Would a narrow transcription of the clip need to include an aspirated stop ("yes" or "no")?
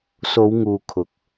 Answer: yes